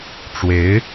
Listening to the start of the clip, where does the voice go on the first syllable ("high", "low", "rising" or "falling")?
rising